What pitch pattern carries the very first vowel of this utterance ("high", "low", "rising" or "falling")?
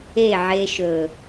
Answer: falling